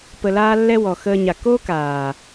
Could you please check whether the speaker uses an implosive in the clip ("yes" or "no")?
no